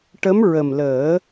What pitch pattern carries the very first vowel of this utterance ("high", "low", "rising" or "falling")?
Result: rising